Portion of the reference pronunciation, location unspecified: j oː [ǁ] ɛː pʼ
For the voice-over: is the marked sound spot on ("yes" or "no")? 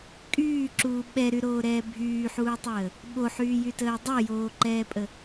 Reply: no